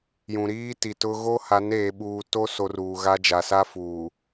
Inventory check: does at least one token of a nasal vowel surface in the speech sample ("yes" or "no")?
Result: yes